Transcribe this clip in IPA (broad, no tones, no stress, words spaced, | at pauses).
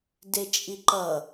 det͡ʃʼiǃʌ